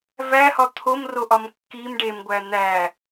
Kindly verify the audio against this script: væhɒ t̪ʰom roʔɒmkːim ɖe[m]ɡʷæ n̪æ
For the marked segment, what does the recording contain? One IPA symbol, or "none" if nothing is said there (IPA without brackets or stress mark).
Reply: m